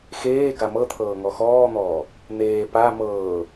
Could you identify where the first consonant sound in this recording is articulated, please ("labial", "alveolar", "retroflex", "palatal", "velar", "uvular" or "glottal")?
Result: velar